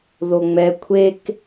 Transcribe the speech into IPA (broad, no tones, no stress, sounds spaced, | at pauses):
ð o ŋ͡m ɛ kʷʰ e k